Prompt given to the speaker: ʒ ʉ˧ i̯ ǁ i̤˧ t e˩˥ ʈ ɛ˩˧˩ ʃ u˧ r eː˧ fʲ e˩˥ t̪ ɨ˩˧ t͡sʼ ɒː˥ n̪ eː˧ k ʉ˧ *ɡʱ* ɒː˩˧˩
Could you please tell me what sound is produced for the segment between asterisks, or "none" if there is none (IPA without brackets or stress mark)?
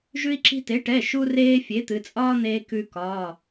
k